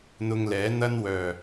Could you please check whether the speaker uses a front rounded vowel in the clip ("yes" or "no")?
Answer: yes